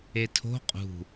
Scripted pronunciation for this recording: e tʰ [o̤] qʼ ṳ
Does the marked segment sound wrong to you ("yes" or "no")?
no